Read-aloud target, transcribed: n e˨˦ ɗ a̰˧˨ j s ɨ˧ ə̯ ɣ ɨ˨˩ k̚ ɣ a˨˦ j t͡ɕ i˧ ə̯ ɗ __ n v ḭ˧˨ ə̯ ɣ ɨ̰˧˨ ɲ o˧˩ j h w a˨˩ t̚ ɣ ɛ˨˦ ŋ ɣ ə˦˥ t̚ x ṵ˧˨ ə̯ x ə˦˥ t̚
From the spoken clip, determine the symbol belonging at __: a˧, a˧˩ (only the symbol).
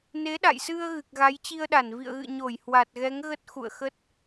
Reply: a˧˩